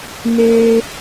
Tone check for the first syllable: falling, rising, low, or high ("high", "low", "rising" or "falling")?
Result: high